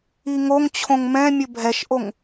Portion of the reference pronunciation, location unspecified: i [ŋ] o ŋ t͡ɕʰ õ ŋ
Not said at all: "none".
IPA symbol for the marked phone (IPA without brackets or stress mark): ŋ